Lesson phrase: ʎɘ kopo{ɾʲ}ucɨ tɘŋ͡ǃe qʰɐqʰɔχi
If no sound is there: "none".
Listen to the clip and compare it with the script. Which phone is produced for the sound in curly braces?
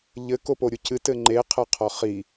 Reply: ɾʲ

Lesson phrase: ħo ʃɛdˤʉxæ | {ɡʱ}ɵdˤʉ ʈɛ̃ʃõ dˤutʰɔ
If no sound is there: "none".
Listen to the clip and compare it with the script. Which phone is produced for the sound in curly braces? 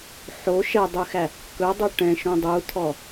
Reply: k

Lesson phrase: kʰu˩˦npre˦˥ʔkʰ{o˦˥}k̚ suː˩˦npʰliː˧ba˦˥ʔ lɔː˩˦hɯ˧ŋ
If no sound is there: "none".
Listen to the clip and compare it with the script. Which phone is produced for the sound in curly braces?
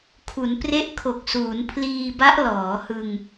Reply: o˨˩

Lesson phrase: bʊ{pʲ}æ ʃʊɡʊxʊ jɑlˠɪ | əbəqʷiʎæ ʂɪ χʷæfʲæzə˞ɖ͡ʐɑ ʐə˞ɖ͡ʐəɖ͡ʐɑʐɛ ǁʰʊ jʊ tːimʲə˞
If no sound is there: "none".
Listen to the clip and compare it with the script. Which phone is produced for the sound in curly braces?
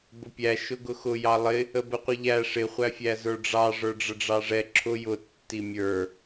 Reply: pʲ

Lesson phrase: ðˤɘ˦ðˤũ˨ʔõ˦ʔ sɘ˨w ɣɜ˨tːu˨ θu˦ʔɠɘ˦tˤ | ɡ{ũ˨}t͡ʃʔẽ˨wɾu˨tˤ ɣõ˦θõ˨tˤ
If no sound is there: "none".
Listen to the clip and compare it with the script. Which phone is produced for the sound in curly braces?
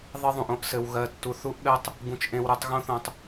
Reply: ũ˨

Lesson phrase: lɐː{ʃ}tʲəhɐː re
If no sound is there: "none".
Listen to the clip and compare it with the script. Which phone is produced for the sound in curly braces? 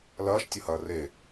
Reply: ʃ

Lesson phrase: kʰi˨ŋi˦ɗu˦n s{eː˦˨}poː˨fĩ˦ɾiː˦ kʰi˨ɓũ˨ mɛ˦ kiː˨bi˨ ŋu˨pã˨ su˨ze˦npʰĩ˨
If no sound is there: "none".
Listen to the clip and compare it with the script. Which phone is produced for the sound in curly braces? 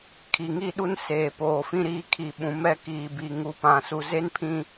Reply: eː˨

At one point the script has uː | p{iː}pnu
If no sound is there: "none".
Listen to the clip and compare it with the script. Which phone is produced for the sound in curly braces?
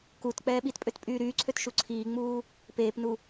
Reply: eː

